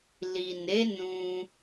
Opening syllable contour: low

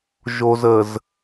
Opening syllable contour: low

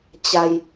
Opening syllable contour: low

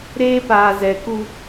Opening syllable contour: high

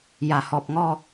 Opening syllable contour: low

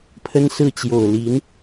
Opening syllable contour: high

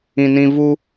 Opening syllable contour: high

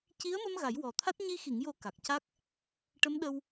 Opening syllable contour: rising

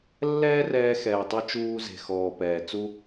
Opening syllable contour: high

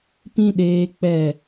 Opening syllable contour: high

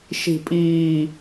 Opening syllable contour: falling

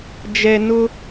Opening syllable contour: low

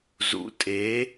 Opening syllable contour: rising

